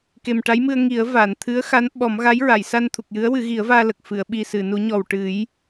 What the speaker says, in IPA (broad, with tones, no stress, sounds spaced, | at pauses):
k e˨˩ m ʈ a˧˥ j m ɨ˧ ə̯ ŋ i˨˩˦ ə̯ v a˨˩˨ n t̪ʰ ɨ˧˥ ə̯ x a˧˥ n ɓ ɔ˨˩˦ m ɣ a˧˥ j ɹ a˨˩˨ j s a˧ n t̪ʰ u˨˩ k̚ j ɨ˧˥ ə̯ w ɨ˨˩˦ ɣ i˨˩˦ ə̯ v aː˧ l ə˨˩ k̚ f ɨ˨˩˨ ə̯ ɓ i˨˩ s ɨ˨˩˨ n u˨˩˦ ɲ ɔ˨˩ w ʈ ɨ˨˩˦ j